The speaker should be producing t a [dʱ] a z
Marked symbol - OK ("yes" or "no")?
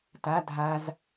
yes